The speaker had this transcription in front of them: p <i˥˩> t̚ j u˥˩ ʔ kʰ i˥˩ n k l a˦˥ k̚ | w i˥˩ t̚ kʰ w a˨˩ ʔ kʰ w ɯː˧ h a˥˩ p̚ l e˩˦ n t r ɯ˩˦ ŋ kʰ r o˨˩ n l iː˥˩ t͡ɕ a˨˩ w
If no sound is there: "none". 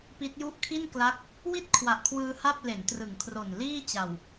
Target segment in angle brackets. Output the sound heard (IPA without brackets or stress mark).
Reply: i˦˥